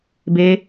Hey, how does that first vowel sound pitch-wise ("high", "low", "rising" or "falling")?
high